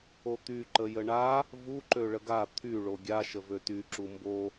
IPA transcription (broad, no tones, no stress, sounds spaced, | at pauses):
o t̪ y ǃ ə j ə ɳ a | v u ǃ ø ɭ ə ɡ a t̪ʰ y ɭ o ɡʲ a ʃ ə v ø t y ǁ u m b o